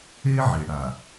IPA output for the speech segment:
e˦ ʕe˨ ɽa˨

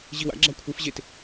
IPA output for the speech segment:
ʑiwa̰ɡ͡ǁa kʷʰɨfʑet

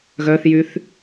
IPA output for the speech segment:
ɣœθjyθ

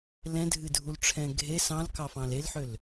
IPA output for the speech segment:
lɛ̃dʱɨdʱulʈ͡ʂʰɛ̃ ɡʱe sɑ̃lkɑfɑ̃l elħøl

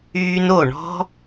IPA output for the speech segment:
yː˧no˦˨ɳɔ̤˦

